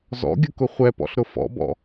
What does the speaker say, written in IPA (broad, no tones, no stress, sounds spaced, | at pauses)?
z ɔ̰ ɡʲ ʊ k ʊ χʷ ɛ p ɔ̰ ɬ ɾ ʊ f ɔ̰ b ɔ̰